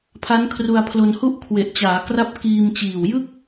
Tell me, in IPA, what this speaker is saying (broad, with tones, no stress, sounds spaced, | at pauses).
pʰ a˦˥ n kʰ r u˧ a̯ pʰ l o˧ n h u˥˩ ʔ kʰ w e˨˩ ʔ t͡ɕ aː˩˦ k r a˥˩ p̚ k iː˧ m t͡ɕ iː˨˩ w j ɯ˥˩ k̚